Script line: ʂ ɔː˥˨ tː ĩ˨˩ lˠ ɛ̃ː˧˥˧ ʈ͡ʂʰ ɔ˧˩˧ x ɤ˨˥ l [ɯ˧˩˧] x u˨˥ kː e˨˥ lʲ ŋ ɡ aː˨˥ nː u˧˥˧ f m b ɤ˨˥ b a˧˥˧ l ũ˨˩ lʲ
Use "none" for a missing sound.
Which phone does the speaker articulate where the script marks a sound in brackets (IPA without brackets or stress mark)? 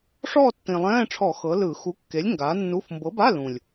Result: ɯ˧˩˧